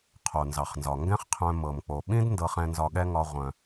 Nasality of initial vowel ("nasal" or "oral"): oral